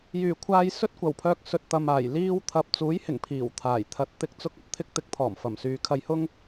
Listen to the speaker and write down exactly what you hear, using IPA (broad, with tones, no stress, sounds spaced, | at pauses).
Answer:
j yː˨˩ kʷʰ aː˧ j s ɵ˥ t̚ kʷ ɐ˨˩ w pʰ œː˧ k̚ s ɵ˨ t̚ t̪ ɐ˨ m aː˨˩ j l iː˧ w t̪ʰ ɐ˨ p̚ t͡s uː˨˥ j h ɪ˨˩ ŋ pʰ iː˨˩ w t̪ʰ aː˨˩ j t̪ʰ ɐ˧ t̚ t̪ ɪ˥ k̚ t͡s ʊ˥ k̚ ɐ˧ p̚ t̪ʰ ɪ˥ k̚ t̪ ɪ˨˥ k̚ t̪ʰ ɔː˨˩ m f ɐ˨˩ m s yː˨ kʰ ɐ˧ j h ʊ˥ ŋ